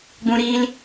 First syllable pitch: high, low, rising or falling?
high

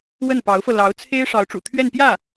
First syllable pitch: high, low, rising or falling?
falling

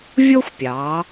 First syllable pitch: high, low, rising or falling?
high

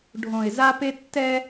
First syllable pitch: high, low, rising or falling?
low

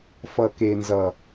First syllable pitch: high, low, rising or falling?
low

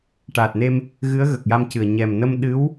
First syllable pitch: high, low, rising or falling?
low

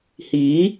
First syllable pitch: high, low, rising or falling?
rising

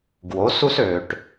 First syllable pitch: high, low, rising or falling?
rising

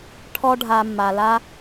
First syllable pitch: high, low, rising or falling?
high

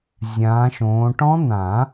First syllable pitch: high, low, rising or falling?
rising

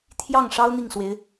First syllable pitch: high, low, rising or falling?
falling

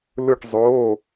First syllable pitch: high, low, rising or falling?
falling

